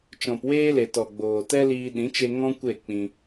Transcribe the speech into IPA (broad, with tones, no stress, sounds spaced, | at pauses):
t͡ʃ ɔ̃˨ p w eː˦ l e˨ t ɔ˨ ɡ͡b oː˨ t ɛ˦ l iː˧ ɗ ĩ˨˦ t͡ʃ e˧ ŋ ɔ̃˦ kʷ e˦˨ k͡p ĩ˧